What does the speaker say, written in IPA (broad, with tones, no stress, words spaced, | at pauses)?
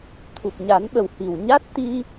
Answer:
t̪ʰu˨˩p̚ɲa˨˩˦nɓə˨˩w hi˨˩wɲa˦˥t̚t̪i˧